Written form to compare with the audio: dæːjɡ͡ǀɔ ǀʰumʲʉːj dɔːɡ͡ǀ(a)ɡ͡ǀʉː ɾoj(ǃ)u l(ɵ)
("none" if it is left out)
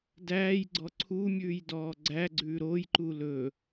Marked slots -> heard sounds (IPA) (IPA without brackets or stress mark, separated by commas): æ, ǃ, ɵ